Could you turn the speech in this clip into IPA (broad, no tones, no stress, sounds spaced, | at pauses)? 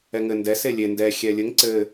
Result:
ɛ ŋ ɘ n d ɛ s e lʲ e n d ɛ xʲ ɛ lʲ ɘ ŋ ǀ ɘ